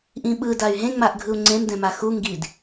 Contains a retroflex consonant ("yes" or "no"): no